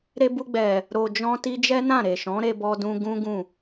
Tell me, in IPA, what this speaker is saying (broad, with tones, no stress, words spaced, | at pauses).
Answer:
ɾe˧bu˧ɡ͡bɛ˨ | ɾo˨d͡ʒɔ̃˧ti˧ d͡ʒɛ˦nã˦˨ɾe˨ ʃɔ̃˨˦ɾe˧bɔ˧dũ˧ ɡũ˦ɡũ˦˨